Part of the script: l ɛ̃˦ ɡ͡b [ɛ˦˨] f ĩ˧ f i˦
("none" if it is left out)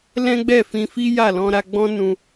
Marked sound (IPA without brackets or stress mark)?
ɛ˦˨